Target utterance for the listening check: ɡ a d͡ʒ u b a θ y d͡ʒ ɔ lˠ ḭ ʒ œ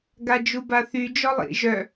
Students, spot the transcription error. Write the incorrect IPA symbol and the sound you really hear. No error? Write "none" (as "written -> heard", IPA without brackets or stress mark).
none